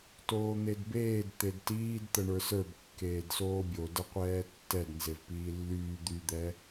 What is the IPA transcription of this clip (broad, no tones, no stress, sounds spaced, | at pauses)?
t oː n̪ e d b eː d t̪ e d t iː d t̪ ə ɳ ə˞ s ə˞ b kː eː d s oː bʲ o d ə qʷ ɛː tː ɛ d n z e v p iː lː yː d̪ y d̪ ɛ